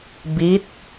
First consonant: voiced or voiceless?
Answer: voiced